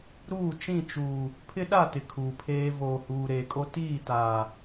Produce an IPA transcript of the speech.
ɾ uː˦˨ t͡ʃ ĩ˦˨ t͡ʃ uː˨ | pʰ ɪ˦ ɗ a˦˨ t ɪ˨ kʰ uː˨ pʰ eː˦ v oː˨ h uː˨ ɾ eː˨ kʼ o˦ t iː˦˨ t aː˨

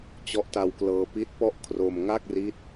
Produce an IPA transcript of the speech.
t͡ɕ ɔ˦˥ ʔ t a˧ w k l ɤː˧ p i˦˥ t̚ p ɔ˥˩ ʔ kʰ r o˧ m ŋ a˥˩ k̚ r i˦˥ t̚

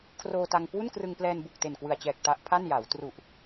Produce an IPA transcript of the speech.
kʰ r oː˧ t a˧ ŋ k w u˥˩ n k r ɯ˧ ŋ p l ɛː˧ n b u˨˩ k̚ t e˨˩ n k w ɯ˨˩ a̯ t͡ɕ ɛː˨˩ k̚ t a˦˥ ʔ pʰ a˥˩ n j a˩˦ w t r u˨˩ ʔ

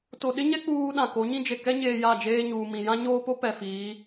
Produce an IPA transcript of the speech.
t o˨ ɗ ɪ˦ ɲ ɛ˦ k͡p uː˦ ɗ ã˨ k o˨˦ ɲ ĩ˦ d͡ʒ e˨ k ɛ˦ ɲ eː˨ j a˦˨ d͡ʒ eː˦ ɲ uː˨ m ĩ˨ j ã˦ ɲ oː˦ p o˦ p ɛ˨ f iː˨˦

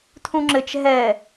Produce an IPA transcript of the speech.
tʰ ũ ŋ͡ǁ ɘ t͡ʃ ɦ ɛ

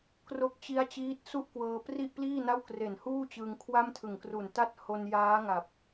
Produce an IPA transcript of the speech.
k r o˦˥ k̚ t͡ɕ i˦˥ a̯ t͡ɕ iː˦˥ t̚ s u˥˩ ʔ k w ɤː˧ p r i˥˩ ʔ p l iː˥˩ n a˥˩ w k r e˨˩ n h uː˥˩ t͡ɕ ɯ˧ ŋ kʰ w a˥˩ m tʰ ɯ˨˩ ŋ k r u˨˩ n t a˥˩ t̚ h o˧ n j aː˦˥ ŋ a˨˩ p̚

